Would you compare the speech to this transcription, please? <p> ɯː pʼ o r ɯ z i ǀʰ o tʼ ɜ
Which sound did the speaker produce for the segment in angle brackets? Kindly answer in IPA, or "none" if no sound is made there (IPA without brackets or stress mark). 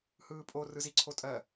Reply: h